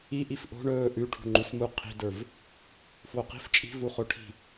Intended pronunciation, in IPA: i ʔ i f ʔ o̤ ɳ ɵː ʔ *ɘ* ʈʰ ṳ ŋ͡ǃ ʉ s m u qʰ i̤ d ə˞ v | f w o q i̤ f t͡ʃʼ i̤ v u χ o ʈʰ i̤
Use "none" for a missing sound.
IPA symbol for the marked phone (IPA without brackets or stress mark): ʉ